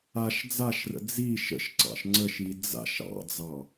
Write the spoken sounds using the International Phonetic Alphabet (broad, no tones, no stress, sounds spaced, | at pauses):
a ʃ d͡z a ʃ r ə̰ d͡z i ʃ ə̰ ʃ ǀ ɑ̰ ʃ ŋ͡ǀ ə ʃ i d͡z a̰ ʃ ɑ̰ d͡z ɑ